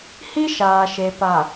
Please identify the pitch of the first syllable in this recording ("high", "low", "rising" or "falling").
high